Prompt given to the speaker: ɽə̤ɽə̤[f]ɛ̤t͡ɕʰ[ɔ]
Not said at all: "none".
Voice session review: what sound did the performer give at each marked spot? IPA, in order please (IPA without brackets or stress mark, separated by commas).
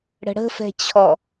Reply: f, ɔ